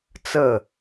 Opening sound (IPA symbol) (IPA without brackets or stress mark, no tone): t͡s